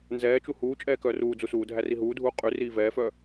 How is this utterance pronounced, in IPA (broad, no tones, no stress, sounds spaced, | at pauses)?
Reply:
n z ɛː t͡ʃ u h uː t͡ʃʼ ɛː k œː r uː d͡z u s uː dʱ æ r i ɦ uː dʱ uː qʼ y r iː v ɛː f œ